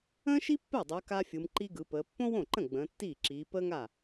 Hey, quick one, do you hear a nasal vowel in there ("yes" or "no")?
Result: yes